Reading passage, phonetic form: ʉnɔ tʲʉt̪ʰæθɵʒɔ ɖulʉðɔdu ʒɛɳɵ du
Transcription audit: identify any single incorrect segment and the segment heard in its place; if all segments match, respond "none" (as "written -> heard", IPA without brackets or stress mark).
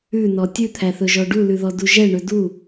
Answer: none